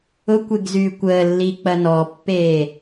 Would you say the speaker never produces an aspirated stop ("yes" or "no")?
yes